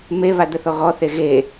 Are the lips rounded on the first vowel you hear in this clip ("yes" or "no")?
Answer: no